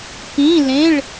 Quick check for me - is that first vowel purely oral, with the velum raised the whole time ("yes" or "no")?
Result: no